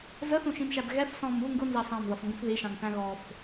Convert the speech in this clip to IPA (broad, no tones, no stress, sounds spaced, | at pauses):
z ə θ ũ ʃ ĩ m ʃ æ b ɣ ɛ f s ɔ̃ m u ŋ ɡ ʊ n z ɑ s ɑ̃ m ð ʌ f ŋ ɡ ə̃ f ð i ʃ ɑ̃ ŋ s æ̃ ɣ ɔ f